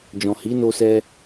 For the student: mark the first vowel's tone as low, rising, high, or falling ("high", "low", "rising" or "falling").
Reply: low